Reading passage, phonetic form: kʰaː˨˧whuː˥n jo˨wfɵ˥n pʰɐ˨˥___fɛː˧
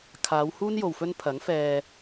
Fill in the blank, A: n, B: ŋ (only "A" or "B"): B